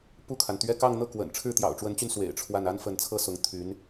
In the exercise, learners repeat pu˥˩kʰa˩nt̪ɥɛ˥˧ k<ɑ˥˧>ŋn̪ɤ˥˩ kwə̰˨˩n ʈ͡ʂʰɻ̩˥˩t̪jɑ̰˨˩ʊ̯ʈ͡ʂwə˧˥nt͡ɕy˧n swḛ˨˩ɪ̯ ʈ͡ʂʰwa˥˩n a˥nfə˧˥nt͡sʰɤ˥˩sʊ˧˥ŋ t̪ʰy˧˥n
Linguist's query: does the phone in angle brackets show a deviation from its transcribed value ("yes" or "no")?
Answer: no